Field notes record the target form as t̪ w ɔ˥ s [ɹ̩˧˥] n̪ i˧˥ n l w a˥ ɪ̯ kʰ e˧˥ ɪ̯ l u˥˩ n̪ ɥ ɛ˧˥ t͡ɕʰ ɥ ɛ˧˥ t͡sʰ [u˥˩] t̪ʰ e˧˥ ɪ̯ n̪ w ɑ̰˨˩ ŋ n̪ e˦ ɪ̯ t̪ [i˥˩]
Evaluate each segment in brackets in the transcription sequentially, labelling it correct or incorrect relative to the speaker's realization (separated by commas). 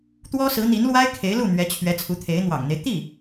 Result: correct, incorrect, correct